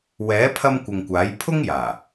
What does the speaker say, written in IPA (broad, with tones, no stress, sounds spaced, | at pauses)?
w ɛː˨˥ pʰ ɐ˧ m kʷ ɪ˨ ŋ kʷ aː˨˥ j pʰ ʊ˥ ŋ j aː˨˩